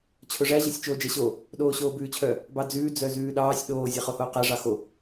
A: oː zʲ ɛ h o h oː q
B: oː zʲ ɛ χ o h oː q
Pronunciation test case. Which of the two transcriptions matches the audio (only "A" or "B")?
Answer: B